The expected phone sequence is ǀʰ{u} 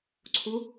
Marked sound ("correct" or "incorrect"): correct